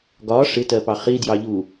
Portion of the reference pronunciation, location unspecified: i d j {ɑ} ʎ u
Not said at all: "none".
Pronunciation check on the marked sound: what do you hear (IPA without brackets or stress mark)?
ɑ